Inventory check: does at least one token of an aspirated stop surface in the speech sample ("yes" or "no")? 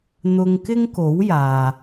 no